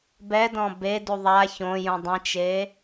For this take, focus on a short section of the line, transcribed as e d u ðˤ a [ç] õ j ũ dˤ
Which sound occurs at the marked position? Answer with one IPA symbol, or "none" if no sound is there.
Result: ç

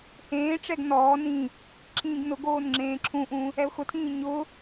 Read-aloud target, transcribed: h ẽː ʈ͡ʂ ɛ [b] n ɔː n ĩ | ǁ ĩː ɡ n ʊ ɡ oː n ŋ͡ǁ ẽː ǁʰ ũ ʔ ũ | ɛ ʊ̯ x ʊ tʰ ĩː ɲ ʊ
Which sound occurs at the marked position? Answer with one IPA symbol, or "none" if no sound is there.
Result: ɡ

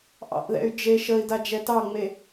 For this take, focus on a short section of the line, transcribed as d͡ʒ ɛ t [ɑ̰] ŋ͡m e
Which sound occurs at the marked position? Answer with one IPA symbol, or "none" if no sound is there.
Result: ɑ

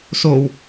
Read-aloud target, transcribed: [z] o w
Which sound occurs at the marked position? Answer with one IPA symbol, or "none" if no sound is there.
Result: s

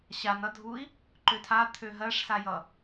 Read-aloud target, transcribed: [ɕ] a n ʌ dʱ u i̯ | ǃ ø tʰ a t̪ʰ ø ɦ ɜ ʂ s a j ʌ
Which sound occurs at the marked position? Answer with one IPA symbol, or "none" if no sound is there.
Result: ɕ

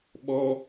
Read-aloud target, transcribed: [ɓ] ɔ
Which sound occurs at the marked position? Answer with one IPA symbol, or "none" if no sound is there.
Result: ɓ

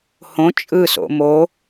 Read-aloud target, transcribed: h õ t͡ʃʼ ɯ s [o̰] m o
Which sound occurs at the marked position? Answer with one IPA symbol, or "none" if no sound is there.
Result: o̰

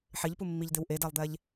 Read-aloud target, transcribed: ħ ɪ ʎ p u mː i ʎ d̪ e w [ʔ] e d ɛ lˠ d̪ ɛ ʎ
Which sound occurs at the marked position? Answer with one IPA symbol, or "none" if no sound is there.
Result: ʔ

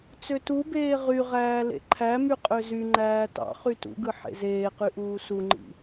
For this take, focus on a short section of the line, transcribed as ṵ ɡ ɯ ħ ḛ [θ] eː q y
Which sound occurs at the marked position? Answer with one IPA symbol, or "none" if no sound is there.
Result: z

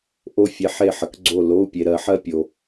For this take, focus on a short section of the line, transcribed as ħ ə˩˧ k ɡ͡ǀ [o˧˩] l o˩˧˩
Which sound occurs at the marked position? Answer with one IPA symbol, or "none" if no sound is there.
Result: o˧˩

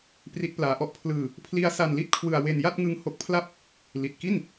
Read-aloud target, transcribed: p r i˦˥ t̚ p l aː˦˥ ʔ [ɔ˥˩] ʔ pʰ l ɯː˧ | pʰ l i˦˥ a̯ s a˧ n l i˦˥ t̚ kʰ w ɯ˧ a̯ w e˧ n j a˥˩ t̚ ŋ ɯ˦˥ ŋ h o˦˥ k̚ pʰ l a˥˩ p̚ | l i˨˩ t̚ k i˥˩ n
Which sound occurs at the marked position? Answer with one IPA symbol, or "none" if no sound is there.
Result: ɔ˦˥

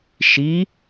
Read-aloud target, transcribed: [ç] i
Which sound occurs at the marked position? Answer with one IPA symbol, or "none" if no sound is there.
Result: ʃ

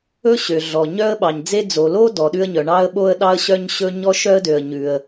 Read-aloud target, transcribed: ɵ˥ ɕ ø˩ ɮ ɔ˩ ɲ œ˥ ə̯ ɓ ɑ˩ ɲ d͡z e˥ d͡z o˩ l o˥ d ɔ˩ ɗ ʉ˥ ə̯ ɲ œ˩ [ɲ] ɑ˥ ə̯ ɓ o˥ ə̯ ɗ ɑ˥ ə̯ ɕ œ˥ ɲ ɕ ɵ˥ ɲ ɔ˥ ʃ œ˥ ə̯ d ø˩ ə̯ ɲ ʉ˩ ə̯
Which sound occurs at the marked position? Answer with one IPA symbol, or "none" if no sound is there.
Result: ɳ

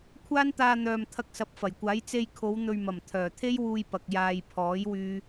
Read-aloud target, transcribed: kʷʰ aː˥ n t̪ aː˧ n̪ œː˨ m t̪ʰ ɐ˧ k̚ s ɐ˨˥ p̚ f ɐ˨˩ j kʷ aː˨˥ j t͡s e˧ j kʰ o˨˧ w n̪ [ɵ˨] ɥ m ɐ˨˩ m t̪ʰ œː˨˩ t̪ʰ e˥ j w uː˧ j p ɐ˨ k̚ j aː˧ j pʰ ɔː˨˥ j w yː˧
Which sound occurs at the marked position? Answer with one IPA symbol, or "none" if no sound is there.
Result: ɵ˨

